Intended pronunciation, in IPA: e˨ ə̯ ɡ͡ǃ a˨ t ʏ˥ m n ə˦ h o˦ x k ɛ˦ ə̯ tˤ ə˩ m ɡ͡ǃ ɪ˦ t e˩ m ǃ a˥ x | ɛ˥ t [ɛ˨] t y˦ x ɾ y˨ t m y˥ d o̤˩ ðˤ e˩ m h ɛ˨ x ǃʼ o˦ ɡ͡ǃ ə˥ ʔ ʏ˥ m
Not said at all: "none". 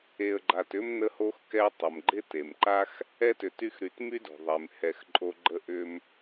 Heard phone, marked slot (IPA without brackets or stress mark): ʏ˨